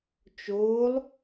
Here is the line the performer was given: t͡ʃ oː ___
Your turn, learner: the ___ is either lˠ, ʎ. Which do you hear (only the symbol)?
lˠ